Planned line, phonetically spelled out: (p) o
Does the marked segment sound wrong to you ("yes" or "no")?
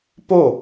no